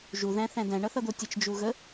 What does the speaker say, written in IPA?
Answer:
ʒ u ð æ̃ θ æ̃ d æ̃ ɳ ʌ θ ʌ d̪ o tʲ ə t͡ʃ d͡ʒ u ɣ ə

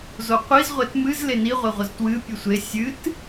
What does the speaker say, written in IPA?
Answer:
z o qʷ i z ʁʷ e t m ɨ z l e n i ʁʷ e ʁʷ ə z t w ɨ pʲ ɨ sʷ e sʲ ɨ t

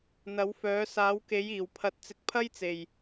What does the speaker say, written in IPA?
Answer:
n̪ ɐ˨˥ w f œː˨˥ s aː˨˥ w k e˨˥ j iː˨˩ w pʰ ɐ˨ t̚ t͡s ɪ˨ k̚ pʰ ɐ˥ j t͡s e˨˩ j

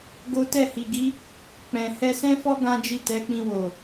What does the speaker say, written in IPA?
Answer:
ɡ o˦ t ɛ˦˨ h i˨ ɡ i˨˦ | k͡p ɛ̃˨ h ɛ˧ s ɛ̃˦ f ɔ˦ ɡ ã˦ d͡ʒ i˦˨ t ɛ˨˦ k͡p ĩ˧ w o˨

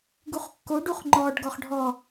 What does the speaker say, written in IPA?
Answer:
ɡ u χ kː o ɖ u χ ŋ͡ǃ ɔ ɖ ɡ ɔ χ ɖʱ ɔ

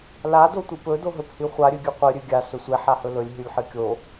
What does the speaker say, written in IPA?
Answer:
l a d o tʷ i p ɵ d o ɦ ɵ p h i χʷ a ɾʲ ɨ ɡʲ ʉ qʷ ɨ ɾʲ ʉ ɡʲ a s ɵ sʷ e ħ a h ɵ l ɵ lʲ ɦ ʉ lʲ ħ ɨ kʲ o

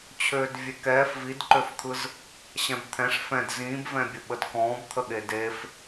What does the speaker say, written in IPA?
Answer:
t͡ɕʰ øː d vʲ e k ɛː f v i d ǃ ø f t̪ʰ ɯ z | ɕ ɛ̃ b t̪ʰ ɛ̃ ʂ f ɛ̃ d z ĩː b v ɛ̃ bʲ ə ɓ ə d k ɔ̃ː b t̪ʰ ə ɠ e d e f

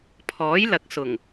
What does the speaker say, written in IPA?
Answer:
pʰ ɔː˨˥ j l ɐ˨ k̚ s ʊ˨˩ ŋ

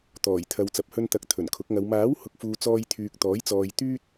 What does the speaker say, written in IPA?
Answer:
t̪ ɔː˨˩ j t̪ʰ ɐ˨ w t͡s ɐ˨ p̚ h ɵ˧ n t̪ ɐ˨˥ k̚ t̪ʰ ɵ˨˩ n kʰ ʊ˨˥ k̚ ŋ ɐ˨˧ w m aː˨˥ w h ʊ˨ k̚ f uː˨ t͡s ɔː˧ j t̪ʰ yː˨ k̚ t̪ ɔː˨˥ j t͡s ɔː˨ j t̪ yː˧ t̚

